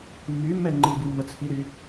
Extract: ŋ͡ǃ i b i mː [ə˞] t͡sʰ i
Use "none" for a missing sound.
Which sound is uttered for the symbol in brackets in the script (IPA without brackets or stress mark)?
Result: ə